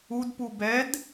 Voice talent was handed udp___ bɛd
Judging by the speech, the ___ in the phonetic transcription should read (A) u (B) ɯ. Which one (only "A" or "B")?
A